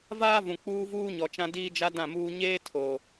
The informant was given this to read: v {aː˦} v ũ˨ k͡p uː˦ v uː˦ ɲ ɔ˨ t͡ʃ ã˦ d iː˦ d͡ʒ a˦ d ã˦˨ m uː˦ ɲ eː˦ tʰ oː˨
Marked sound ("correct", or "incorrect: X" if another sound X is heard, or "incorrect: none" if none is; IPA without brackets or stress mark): correct